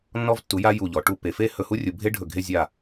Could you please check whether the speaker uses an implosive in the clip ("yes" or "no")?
no